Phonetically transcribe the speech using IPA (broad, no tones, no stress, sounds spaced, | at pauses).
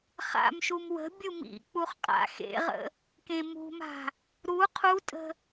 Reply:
χ a̰ m ʃ u m w ə̤ bʲ u m ḭ k͡p u χ qʼ a̰ x ḛ ʁ ə̰ | k ẽ m ṳ m a̤ | ɾ u qʰ u tʼ ə̤